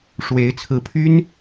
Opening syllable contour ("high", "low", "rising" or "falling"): rising